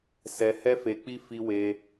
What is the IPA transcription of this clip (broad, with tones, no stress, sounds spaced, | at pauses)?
s ɛ˧ h ɛ˦ f e˧ k͡p i˦ f i˧ w e˧